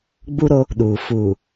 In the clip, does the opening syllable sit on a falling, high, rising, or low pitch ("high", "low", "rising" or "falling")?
high